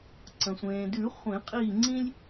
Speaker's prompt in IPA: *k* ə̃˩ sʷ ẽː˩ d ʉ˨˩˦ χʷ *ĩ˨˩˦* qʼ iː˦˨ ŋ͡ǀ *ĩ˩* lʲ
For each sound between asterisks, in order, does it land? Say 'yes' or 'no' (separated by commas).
no, yes, no